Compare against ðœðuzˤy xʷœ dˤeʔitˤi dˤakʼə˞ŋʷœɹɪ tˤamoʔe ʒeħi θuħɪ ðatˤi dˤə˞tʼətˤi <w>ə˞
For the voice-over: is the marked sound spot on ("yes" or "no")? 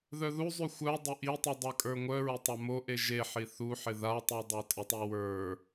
yes